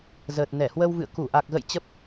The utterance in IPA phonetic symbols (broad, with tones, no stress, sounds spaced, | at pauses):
z əː˨˩ t̚ n ɛ˧˩ h w ə˧ w v ɨ̰˧˨ ə̯ k u˧˩ ʔ a˨˩ k̚ ɣ ə̰˧˨ j t͡ɕ ə˦˥ p̚